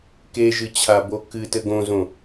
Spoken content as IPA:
keʒɨt͡ɕʰabo kɨ tɘɡõzõ

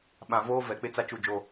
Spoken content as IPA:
ɓã˨voː˦ vɛ˨˦k͡pɪ˦t͡sa˦ t͡ʃu˨ d͡ʒo˨

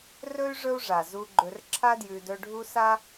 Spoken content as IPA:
rɵ˥y̯ ʐɵ˦u̯ʐa˩ zu˨ɡ͡ǃɵ˨rǁʰa˦djʉ˨ dɵ˦ɖʱu˥ sa˥

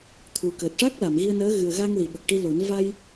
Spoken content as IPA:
t̪ʰu˨˩ kəː˨˩t̚ʂa˦˥k̚ la˨˩˨mɣi˧ə̯nəː˧˥ ɣɨ˨˩ə̯ɣa˧ŋ li˨˩˨ ɓə˨˩k̚ʈi˧lo˨˩˦n va˧j

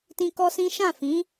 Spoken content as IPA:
tĩ˦kɔ˦sĩ˦ ʃã˦˨fĩ˨˦

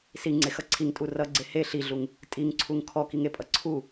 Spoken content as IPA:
siŋ͡ǀexʌ ǀʰiŋtʼu rʌɡ͡ǀe he ɬiɮuŋ | tʼiŋǀʰuŋ kʰɔkiŋepʼʌ ǀʰu

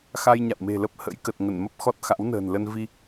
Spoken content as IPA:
xa˧jɲa̰˧˨wme̤˨˩lə˦˥p̚ hə̰˧˥jkə˨˩t̚ ŋə˧˩nmə˦˥p̚ xɔ˦˥t̚xa̰˧˥wnə̤ː˨˩nlə˧n vi˧

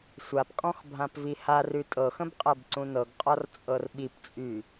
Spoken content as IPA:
sʷapkʼɔ̃x bʱãpviharʉ tʼɤxə̃b qʼɤbǀũnɤɡqʼɔr t͡sʼɤrɓipt͡sʼy

